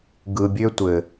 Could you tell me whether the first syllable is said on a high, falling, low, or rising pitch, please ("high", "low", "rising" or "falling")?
low